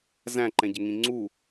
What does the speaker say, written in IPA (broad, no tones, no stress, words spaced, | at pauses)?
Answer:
zæ̃ǃɛ̃ɟɪŋĩ ŋ͡ǀu